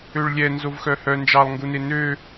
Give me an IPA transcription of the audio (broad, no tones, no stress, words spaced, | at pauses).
øɭlʲɛ nzovxœhœ nd͡ʒɑlˠŋɡune nø